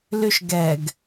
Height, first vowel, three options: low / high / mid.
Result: high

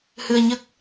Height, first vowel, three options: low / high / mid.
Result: high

